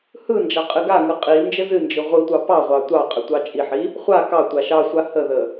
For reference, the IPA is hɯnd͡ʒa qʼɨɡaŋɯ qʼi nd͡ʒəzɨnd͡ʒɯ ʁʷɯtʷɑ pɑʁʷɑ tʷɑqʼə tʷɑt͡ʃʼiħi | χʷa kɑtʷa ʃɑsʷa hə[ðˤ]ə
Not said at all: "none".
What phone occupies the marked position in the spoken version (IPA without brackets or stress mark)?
ð